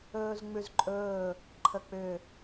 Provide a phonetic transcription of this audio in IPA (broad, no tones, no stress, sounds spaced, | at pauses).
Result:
ɵː z ŋ͡m ʉ z ǃʼ ɵː | ǃʰ ə k͡p ʏ